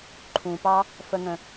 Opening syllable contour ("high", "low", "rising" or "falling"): low